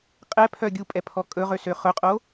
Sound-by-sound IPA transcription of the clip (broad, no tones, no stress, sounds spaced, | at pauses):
qʼ ɛ pʰ œ ɡʲ u pʼ ɛ pʰ ɔ kʼ ɵ ʁ ø s ø χ ɵ qʼ o